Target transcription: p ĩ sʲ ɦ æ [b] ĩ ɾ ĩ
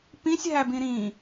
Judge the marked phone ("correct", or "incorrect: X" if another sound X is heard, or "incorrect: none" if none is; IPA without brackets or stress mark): correct